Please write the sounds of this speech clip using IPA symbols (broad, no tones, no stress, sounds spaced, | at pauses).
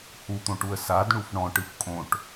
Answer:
h u t̪ õ ʈ u ə̯ s a d ɳ u f ɳ ɔ̃ ʈ ɯ f kʼ õ ʈ